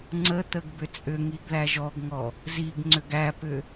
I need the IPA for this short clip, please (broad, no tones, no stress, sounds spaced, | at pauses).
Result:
ŋ͡ǀ ə t̪ ə ɡ b ʏ t͡sʼ ʏ ŋ i ɡ ð æ ʒ ɔ ɡ ŋ ɔ | z i ɡ ŋ͡ǀ ʏ ɡ æ p ʏ